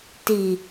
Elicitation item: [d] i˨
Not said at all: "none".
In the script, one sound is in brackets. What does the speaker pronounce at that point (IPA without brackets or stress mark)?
t